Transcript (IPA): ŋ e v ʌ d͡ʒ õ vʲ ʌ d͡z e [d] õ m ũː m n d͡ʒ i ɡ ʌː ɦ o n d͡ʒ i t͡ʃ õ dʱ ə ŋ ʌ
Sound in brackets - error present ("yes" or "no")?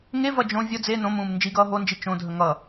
yes